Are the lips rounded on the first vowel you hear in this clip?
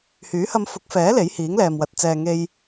yes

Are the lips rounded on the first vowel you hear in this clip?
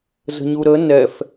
no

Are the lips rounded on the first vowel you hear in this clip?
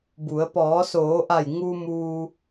yes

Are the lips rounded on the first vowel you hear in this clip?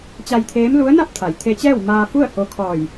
no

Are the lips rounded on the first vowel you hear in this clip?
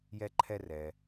no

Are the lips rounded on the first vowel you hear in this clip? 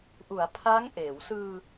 yes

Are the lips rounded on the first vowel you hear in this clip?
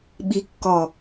no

